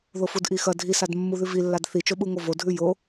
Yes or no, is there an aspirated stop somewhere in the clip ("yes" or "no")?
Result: no